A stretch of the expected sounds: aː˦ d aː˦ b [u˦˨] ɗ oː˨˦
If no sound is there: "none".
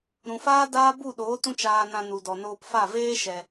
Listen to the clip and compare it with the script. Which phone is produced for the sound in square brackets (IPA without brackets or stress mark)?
u˦˨